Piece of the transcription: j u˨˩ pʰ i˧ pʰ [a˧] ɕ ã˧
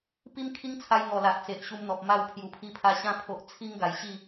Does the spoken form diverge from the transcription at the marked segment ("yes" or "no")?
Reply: no